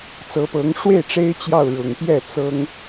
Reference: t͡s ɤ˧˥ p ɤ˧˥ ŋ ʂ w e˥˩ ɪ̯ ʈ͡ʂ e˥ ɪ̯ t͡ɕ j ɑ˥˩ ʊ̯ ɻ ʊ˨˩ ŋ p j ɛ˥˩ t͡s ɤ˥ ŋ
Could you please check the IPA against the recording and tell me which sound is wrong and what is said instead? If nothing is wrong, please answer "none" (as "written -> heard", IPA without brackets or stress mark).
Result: none